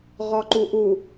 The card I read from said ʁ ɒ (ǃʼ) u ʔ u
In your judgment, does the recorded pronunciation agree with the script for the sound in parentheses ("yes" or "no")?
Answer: no